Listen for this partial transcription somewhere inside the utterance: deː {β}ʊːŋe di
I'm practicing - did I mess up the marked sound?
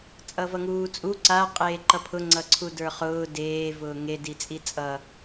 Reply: yes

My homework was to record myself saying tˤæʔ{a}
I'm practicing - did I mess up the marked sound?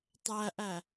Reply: yes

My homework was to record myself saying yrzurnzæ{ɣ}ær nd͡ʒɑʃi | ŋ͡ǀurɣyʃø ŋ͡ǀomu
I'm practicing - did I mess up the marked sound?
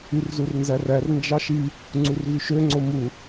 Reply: yes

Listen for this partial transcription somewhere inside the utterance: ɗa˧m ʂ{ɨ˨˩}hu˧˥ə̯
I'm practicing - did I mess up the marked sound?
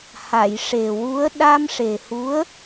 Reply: yes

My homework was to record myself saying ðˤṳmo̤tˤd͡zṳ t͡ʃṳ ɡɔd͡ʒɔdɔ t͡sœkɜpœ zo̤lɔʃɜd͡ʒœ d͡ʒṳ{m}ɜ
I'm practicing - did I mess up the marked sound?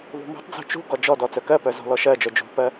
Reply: yes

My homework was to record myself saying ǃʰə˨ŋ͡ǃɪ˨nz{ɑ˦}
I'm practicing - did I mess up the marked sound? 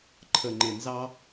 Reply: no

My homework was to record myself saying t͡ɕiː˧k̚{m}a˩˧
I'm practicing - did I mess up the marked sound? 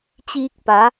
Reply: yes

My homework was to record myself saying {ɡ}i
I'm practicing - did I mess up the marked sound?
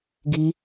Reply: no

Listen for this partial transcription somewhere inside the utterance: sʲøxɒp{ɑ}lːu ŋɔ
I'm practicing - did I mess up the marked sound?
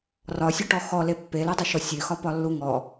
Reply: yes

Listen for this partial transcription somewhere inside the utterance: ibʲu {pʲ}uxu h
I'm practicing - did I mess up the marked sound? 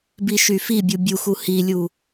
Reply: yes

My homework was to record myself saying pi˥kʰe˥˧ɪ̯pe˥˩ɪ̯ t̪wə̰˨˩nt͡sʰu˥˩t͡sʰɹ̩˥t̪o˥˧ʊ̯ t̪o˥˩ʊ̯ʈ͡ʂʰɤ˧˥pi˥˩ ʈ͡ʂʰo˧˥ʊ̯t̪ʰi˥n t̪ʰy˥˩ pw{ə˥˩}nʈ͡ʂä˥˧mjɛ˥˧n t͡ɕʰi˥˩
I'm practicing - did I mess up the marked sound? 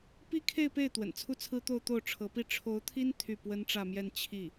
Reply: yes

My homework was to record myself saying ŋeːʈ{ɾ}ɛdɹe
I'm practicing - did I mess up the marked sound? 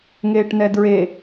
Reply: yes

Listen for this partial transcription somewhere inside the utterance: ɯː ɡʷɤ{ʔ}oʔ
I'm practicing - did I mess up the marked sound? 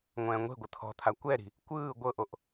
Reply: no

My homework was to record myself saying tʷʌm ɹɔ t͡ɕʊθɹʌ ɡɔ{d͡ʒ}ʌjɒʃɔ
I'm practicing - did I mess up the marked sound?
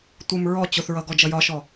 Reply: no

